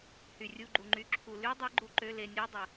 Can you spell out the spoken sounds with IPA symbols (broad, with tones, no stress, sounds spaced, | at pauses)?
h y˩ rʲ u˩˧˩ ɡ͡ǃ u˩ ŋ͡ǃ y˩ ǁʰ u˩ l y˨˦ dˤ e˨˦ ɡ͡ǃ u˨˦ ǃ ø˩˧˩ l e˧˩ nʲ a˨˦ dˤ ə˩